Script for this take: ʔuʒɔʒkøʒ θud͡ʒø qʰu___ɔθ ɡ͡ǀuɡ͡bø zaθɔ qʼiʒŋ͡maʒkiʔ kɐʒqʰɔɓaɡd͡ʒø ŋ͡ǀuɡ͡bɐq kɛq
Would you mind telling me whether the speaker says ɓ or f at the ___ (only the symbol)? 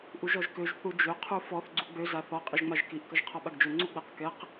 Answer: f